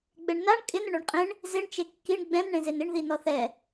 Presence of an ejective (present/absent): present